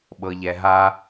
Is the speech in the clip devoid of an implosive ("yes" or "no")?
no